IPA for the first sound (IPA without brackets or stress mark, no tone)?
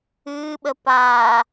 ɨː